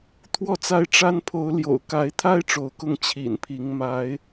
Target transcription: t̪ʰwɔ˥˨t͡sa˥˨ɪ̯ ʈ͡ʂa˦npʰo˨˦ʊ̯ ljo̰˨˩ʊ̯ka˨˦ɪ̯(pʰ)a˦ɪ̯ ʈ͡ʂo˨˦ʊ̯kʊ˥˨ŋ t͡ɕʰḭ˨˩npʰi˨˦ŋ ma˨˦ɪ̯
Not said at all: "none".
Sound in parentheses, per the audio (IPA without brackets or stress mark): t̪ʰ